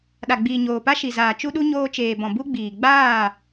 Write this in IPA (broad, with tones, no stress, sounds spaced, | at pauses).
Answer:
ɗ a˨ ɡ͡b iː˨ ɲ oː˨ p a˦ ʃ i˨ z aː˨ t͡ʃ u˦ ɗ u˦ ɲ oː˧ t͡ʃ eː˨ b ɔ̃˨ b u˦ ɡ͡b iː˨ ɡ͡b aː˦˨